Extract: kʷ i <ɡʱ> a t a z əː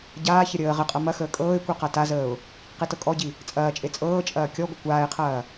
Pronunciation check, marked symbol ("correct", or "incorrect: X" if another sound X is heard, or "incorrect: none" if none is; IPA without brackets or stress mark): incorrect: q